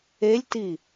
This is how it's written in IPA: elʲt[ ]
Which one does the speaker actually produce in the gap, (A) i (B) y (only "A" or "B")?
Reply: A